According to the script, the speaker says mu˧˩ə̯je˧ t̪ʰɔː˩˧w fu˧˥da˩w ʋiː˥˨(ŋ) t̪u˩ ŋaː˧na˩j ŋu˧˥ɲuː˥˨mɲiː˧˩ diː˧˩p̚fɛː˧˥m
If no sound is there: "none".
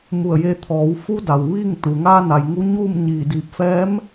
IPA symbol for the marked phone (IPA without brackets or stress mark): ŋ